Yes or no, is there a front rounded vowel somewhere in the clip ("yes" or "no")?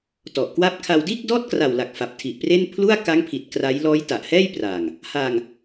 no